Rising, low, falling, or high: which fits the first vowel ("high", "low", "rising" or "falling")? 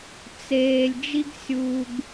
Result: low